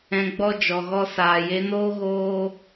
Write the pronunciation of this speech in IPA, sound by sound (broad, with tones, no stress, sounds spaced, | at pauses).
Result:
ɛ̃˧ ɡ͡b ɔ˦ d͡ʒ ɔ˨ ɣ ɔ˦ s aː˨ j e˧ n oː˦ ɣ oː˦